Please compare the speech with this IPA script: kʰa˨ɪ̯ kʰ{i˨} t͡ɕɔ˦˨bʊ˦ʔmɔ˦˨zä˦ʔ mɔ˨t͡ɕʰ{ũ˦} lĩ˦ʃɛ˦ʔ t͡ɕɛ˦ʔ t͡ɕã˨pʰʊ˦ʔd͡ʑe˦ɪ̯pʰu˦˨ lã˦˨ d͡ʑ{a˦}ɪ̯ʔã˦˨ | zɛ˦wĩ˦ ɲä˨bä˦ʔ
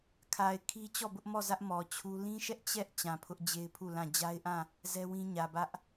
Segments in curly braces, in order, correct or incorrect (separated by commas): incorrect, incorrect, correct